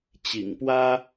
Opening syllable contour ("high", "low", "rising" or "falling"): low